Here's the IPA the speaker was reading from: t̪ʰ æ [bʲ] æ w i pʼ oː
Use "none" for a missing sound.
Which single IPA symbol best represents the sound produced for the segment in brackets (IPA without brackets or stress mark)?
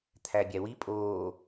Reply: bʲ